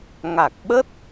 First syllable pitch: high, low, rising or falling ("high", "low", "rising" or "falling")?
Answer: low